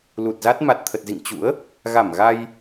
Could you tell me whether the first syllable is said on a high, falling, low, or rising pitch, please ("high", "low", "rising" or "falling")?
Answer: low